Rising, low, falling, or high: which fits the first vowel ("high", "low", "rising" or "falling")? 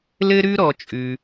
high